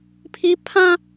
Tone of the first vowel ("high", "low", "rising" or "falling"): high